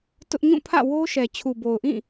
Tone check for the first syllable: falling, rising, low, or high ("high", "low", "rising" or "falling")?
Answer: high